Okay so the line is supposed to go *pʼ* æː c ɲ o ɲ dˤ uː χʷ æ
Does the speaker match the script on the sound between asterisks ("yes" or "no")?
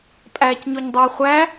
yes